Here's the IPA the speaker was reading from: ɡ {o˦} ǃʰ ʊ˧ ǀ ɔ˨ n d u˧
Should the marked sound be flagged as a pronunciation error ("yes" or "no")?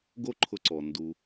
no